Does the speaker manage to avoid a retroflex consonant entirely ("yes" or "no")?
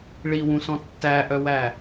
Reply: no